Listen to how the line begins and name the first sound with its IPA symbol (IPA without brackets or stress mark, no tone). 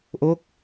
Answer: ʔ